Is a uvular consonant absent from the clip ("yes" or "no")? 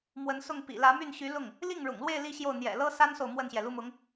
yes